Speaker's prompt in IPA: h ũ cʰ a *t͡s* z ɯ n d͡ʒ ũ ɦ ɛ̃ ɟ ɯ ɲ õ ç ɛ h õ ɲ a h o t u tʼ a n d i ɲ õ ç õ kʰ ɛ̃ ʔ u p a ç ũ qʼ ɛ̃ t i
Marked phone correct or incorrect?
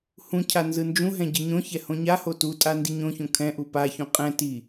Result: incorrect